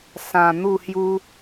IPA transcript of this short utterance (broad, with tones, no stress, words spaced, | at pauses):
sã˨˩ n̪u˥˧hju˦